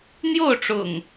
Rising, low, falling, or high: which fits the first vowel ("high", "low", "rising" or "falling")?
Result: falling